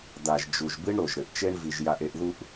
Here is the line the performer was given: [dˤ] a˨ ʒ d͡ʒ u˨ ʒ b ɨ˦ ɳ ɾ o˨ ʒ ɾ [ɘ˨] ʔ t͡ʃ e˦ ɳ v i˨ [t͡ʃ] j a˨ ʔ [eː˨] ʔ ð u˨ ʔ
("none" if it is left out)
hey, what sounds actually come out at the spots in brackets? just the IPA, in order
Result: d̪, ɘ˨, ʒ, e˨

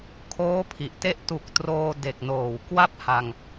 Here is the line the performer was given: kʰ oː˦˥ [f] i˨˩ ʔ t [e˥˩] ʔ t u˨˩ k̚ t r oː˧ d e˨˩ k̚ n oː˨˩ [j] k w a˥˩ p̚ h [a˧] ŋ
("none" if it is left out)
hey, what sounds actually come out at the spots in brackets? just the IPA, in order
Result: pʰ, e˦˥, w, a˧

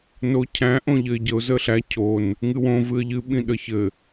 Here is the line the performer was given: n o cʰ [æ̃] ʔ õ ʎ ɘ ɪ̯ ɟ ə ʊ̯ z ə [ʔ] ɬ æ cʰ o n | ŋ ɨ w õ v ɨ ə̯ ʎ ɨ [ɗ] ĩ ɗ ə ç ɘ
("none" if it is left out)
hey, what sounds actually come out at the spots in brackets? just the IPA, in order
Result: æ̃, none, ɓ

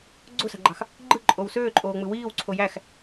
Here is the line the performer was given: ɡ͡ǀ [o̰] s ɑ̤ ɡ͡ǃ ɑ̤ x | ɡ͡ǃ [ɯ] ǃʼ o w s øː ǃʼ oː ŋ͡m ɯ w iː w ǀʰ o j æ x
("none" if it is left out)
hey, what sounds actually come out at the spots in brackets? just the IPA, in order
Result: o̤, ɯ

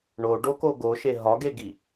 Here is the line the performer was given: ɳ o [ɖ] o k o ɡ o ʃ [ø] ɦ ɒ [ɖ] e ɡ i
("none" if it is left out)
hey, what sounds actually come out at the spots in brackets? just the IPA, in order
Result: ɖ, e, ɡ

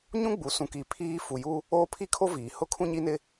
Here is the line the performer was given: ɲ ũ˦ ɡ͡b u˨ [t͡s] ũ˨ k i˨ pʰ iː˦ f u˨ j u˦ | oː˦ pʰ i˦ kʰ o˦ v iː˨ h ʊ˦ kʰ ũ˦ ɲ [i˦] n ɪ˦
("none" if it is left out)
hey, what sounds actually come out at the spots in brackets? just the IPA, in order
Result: s, i˦

